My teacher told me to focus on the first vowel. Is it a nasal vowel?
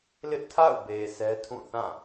no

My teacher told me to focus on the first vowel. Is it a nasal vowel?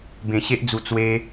yes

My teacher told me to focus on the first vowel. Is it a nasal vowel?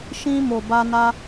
yes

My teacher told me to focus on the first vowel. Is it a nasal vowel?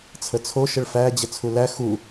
no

